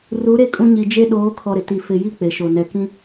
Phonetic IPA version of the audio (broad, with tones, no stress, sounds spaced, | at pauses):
r u˨˦ ɾ e˦ kʼ ũ˦ ɲ i˨ d͡ʒ e˦ ɗ oː˨˦ kʰ ɔ˨ ɾ ɪ˨ t i˨ f ɪ˨ j i˦ k͡p e˨ ʃ o˨ n ɛ˨ k ĩ˦